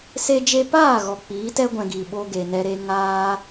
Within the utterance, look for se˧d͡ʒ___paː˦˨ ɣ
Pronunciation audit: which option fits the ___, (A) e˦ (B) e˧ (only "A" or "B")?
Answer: B